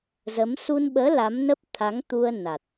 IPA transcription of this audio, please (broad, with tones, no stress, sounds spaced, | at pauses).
z ə˨˦ m s u˧ n ɓ əː˨˦ l a˨˦ m n ə˦˥ p̚ t̪ʰ a˨˦ ŋ t̪ u˧ ə̯ n a˨˩ t̚